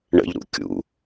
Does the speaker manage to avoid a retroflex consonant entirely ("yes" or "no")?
no